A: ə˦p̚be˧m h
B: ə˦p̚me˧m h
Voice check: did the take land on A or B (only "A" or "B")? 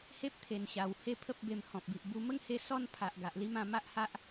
A